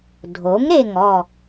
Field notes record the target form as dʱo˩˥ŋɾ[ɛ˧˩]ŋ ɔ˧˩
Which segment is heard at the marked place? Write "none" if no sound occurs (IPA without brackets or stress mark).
e˧˩